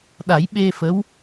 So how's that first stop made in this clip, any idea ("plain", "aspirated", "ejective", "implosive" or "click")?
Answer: implosive